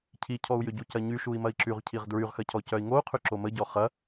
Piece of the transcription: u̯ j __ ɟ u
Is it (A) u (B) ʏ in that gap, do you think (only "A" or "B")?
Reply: B